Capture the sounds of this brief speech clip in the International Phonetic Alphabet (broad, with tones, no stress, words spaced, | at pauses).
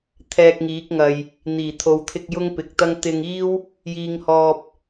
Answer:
t̪ʰɛː˧k̚ŋiː˨˥k̚ŋɐ˨j | n̪iː˨˩t̪ʰo˨wt̪ʰɪ˧k̚ jʊ˥ŋpɪ˨k̚t̪ɐ˥ŋ t̪ɪ˧ŋiː˥w | jiː˧ŋhɔː˧p̚